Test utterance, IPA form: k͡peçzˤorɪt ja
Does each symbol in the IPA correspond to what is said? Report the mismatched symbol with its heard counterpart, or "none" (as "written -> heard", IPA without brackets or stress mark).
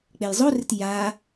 ç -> j